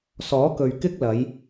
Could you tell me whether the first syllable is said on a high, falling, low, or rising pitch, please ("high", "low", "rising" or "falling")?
rising